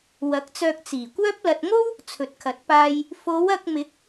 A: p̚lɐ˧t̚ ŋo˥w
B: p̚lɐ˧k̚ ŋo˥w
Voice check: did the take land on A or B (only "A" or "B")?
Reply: A